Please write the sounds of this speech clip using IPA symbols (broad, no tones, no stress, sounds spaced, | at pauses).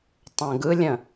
tˤ ə̃ː ɡ ɯ lʲ ə̃